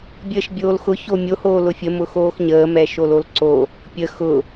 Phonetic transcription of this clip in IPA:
bʲ əː ʃ bʲ oː l x ʊ ç o mʲ o h oː l ʊ fʲ ə m ʊ x oː x ɲ əː m ɛ ʃ o l o l ǀ o | pʲ ə x ʊ

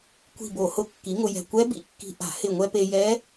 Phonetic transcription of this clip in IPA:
kʷ i̤˧˩ b o˧˩˧ h ʊ˧˩ kː i˩˥ ŋ ʊ˧ j ɛ̤˧˩ kʷ ɛ˧˥ b ḭ˧˩ kː i̤˧ ʔ a̤˧˩˧ h ɪ˧˩ ŋʷ ɛ˧ p e˧ j ɛ˧˥

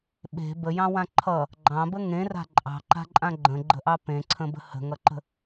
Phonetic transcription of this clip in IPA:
ɓ e̤ b ə j ɑ̃ w ã ǃʰ ʌ | ɡ͡ǃ ɑ̃ b ə ŋ ẽ r a̤ ǃʼ ɑ̤ ǃ a̤ ǃʼ ã ɡ͡ǃ ə̃ ɡ͡ǃ ə̤ ʔ ɑ p ẽ ǀʰ ə̃ b ə̤ h ə̤ ŋ ʌ ǃ ə̤

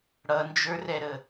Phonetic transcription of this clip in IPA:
ɽ ʌ n d͡ʒ ə˞ r ɛ ɾ ə

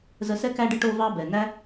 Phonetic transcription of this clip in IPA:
z ə˧ s ɛ˥ k æ˧ ɖ ə˧ ʈ o˧ v ɑ˧ b ɛ˩ n æ˥

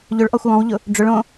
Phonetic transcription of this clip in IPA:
ʎ ʊ ɭ ʔ ɔ xʷ w ɔ̃ w ʎ ʊ | ɖ͡ʐ ʊ ɭ õ

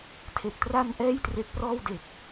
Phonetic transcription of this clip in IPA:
tʰ e˨˩ k̚ t r a˧ n ʔ ɛː˥˩ j t r e˦˥ k̚ p r ɔː˥˩ w d e˨˩ k̚

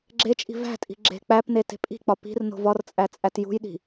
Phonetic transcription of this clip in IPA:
ɡ͡ǁ e t͡ʃʼ i̤ v æ̤ tʼ i̤ ɡ͡ǁ e̤ k͡p æ p n e t e̤ pʼ i̤ k͡p ɒ p i̤ r n o̤ v ɒ r t͡sʼ æ t͡sʼ æ t j ṳ j ɗ i̤

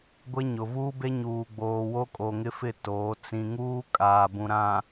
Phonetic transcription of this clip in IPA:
ɡʷ e˦ ɲ ʊ˨ v uː˦ b e˦ ɲ uː˨ ɡ͡b oː˨ w o˦ kʼ o˨ ŋ ɪ˦ f ɪ˦˨ t oː˨˦ t͡s ĩ˨ ŋ uː˦ kʼ aː˨ b ũ˨ ɾ ã˨

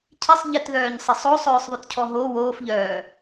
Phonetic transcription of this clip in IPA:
cʰ ɪ sˤ ʎ ɪ t ð œː ɲ sˤ ɪ sˤ o sˤ œː sˤ ðˤ ʉ t cʰ ɔ ɦ o w oː f ʎ œː

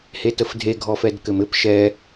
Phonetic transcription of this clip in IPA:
h e t ə f dʱ e ɡʱ ɔ f ɛ d k ɘ m ɘ p ʃ ɛ

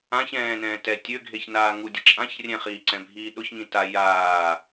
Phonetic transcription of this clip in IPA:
ã ç ɛ̃ː n ɛ̃ː t ɛ tʲ ø ɡʱ e ç n aː ŋ u dʲ ə t͡ʃʼ ã ç rʲ ɛ̃ χ iː ǀ ɛ̃ bʱ iː ɗ ʊ ç ŋ ĩ t a j aː

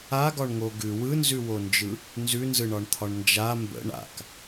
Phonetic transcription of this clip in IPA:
a ɡ ɒ ɳ ŋ o ɡ ʉ w ɯ n z ʉ w o n d͡ʒ ɯ | n z ʉ n z ɯ ɳ ɒ ɳ t̪ʰ ɒ ɳ n d͡ʒ a m b ə̰ ɳ a̰ k

